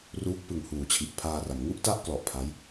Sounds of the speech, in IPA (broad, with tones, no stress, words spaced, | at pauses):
ruː˦˥k̚pɯ˨˩ŋ huː˨˩t͡ɕʰi˨˩ʔpʰaː˧ra˩˦m ŋu˥˩ʔta˥˩ʔklɔ˨˩ʔ pʰa˦˥j